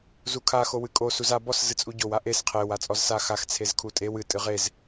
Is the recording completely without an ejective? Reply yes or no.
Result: no